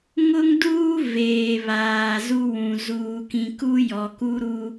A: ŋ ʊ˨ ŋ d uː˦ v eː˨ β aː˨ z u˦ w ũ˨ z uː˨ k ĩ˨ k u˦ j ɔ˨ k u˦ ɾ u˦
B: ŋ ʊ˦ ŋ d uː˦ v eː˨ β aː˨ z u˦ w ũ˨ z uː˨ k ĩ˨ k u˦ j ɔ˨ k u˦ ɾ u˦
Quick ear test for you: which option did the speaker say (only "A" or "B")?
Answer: B